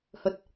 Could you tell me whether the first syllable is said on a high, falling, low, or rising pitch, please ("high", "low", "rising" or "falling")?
low